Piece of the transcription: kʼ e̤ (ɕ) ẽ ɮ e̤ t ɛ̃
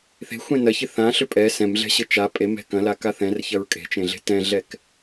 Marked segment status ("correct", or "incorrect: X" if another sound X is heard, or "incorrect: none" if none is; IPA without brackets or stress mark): incorrect: t͡ʃ